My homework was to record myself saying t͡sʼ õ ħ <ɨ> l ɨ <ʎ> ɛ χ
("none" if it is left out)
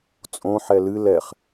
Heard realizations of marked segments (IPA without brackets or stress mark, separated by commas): ɛ, l